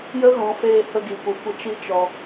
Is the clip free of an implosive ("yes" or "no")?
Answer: yes